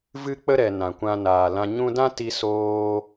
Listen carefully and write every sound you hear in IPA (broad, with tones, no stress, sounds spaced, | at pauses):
v ɨ˦ k͡p ə˦ ɾ ɛ˨ n ã˨ kʷ ã˧ n aː˨ l ã˧ ɲ ũ˧ d ã˦ t i˧ s oː˧